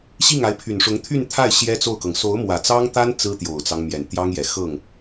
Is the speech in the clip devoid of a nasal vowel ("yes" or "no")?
yes